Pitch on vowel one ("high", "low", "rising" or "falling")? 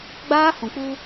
high